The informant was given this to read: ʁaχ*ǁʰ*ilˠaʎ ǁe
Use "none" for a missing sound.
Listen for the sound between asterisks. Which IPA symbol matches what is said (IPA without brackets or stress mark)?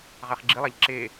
ɡ͡ǁ